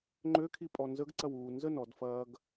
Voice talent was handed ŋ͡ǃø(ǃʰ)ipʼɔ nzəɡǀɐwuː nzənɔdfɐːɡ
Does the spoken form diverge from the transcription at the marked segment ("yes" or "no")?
yes